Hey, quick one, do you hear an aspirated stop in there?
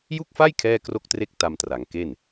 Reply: yes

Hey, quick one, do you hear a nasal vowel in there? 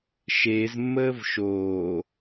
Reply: no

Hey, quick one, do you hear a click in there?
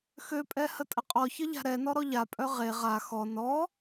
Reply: no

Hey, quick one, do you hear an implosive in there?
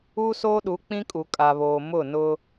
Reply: yes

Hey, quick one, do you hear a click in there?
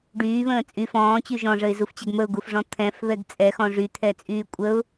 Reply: no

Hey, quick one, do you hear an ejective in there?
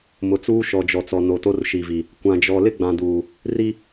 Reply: no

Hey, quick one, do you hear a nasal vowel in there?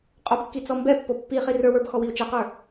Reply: no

